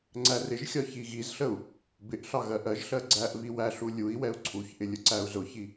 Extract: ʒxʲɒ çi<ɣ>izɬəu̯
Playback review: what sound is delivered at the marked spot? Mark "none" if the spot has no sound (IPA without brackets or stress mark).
ɣ